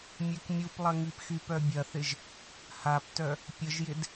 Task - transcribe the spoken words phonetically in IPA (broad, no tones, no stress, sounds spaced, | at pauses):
mʲ ø k mʲ u p lˠ ɐ ŋ i p x y p œ bʲ ɐ θ ɪ ʒ | h a p t œ | pʲ ə ʒ j ɪ d